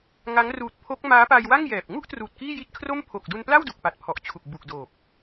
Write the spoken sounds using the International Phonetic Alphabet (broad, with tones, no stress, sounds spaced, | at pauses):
ŋ a˦˥ ŋ r uː˨˩ t̚ pʰ o˦˥ k̚ m aː˦˥ p a˧ j w a˥˩ ŋ j ɛː˨˩ p̚ ŋ u˥˩ ʔ t r uː˨˩ t̚ k iː˥˩ j i˥˩ t̚ kʰ r o˥˩ m pʰ o˨˩ k̚ d u˧ n p l a˥˩ w d u˨˩ k̚ p a˨˩ t̚ pʰ ɔ˨˩ ʔ t͡ɕʰ u˨˩ k̚ b u˨˩ k̚ d oː˨˩ p̚